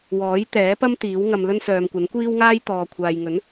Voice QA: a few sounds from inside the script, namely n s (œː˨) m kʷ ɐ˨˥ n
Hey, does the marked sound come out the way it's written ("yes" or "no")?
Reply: yes